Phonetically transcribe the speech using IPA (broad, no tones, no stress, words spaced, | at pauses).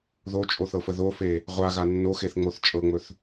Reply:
ðot͡ʃʼoθɤfə ðofe | ʁʷaɣa nːoxeθŋ͡moθ t͡ʃʼɤŋ͡mɵθ